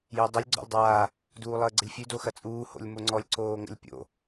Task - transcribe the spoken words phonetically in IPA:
j əː dˤ o lʲ ɡ͡ǀ ɔ̰ lʲ dˤ aː | d uː lˠ əː ɡ͡ǀ ə lʲ fʲ ʉ d o x ɐ t͡sʼ uː h o̰ lʲ m o ŋ͡ǀ ɔ lʲ ǀ oː ŋ ə̰ lʲ pʲ o̰

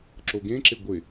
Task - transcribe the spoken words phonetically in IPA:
ǁ o ɡ ẽ ǁ ɪ ɡʷ ɪ

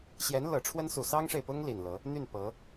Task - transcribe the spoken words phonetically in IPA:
ɕ j ɛ˧˥ n l ɤ˨˩ ʈ͡ʂʰ w ə˥ n s u˨˩ s ɑ˥ ŋ ʂ e˨ ɪ̯ p ʊ˥ ŋ l i˨˩ n l ɤ˧˥ | n̪ y˥˩ n p ɤ˧˥

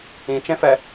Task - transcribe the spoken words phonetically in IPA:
ĩ t͡ʃ ẽ f ɛ

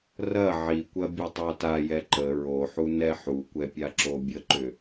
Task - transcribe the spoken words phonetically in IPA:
r ɐ ʕ i kʷ ɐ bʲ ɐ tˤ ɑ t a j ɛ ǃ ə ɹ o ħ u n ɛ ħ u kʷ ɛ pʲ a ǁ o bʲ ə ǃ ʏ

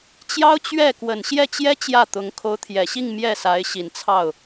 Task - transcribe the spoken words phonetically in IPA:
t͡ɕ j ɑ˥ ʊ̯ t͡ɕ ɥ ɛ˥˩ k w ə˨˩ n ɕ j ɛ˥˩ t͡ɕ j ɛ˥ t͡ɕ j ä˥˩ t̪ ʊ˧˥ ŋ kʰ o˧˥ ʊ̯ t̪ʰ j ɛ˨˩ ɕ i˥˧ ŋ m j ɛ˥˩ s a˧˥ ɪ̯ ɕ i˨˩ n t͡sʰ ɑ˥˩ ʊ̯

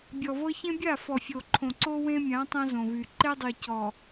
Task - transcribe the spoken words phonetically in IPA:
bʲ ɔ˨ v ɤ˦ ç ẽ˦ bʲ a˦˨ f ɔ˨ fʲ o˨ ǃʰ õ˨ ǀ o˦ w ẽ˦ mʲ ã˨˦ tˤ õ˦ z õ˨ v y˨ ǃ e˦ dˤ y˨ c ɔ˨

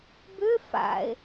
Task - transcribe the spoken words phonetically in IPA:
b ʏ f a̰ e̯

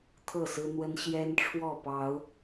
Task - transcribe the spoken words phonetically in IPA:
t̪ʰ ɤ˥˨ s ɹ̩˦ n̪ w ə˦ n ɕ j ɛ˦ n ʈ͡ʂʰ w ɔ˥˨ p ɑ˨˦ ʊ̯

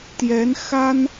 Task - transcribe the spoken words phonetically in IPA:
t̪ j ɛ˧˥ n x a˥ n

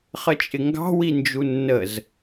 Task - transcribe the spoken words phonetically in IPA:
χ ə t͡ʃʼ ɪ ŋ ɡ ɑ̤ w i n d͡ʒ u nː ə z

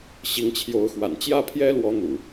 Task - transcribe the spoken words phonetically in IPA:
ɕ i˨˦ ŋ t͡ɕʰ j o˨˦ ʊ̯ x w a̰˨˩ n t͡ɕ j ä˥˨ pʰ j ɛ˦ l w ɔ˨˦ n̪ ṵ˨˩

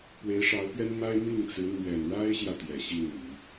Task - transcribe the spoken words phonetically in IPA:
p w e˧˥ ɪ̯ ʂ ɑ˧˥ ʊ̯ p ɥ ɛ˥ n m a˥ ɪ̯ m i˥˩ ŋ t͡s ɹ̩˧˥ n̪ ɥ ɛ˨˩ n ɻ a˥ ɪ̯ ɕ j ä˨ t̪ j ɛ˨˩ ɕ i˥˩ n i˨˩˦

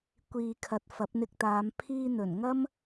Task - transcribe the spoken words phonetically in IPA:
kʷ iː˨ kʰ ɐ˨ t̚ f ɐ˨˥ p̚ n̪ ɪ˧ k̚ t̪ aː˨˧ m pʰ iː˧ n̪ ɵ˨˩ n ŋ ɐ˥ m

